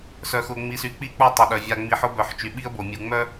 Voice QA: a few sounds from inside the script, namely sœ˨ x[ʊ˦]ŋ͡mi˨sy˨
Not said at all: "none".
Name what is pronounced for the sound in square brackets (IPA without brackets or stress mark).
ʊ˨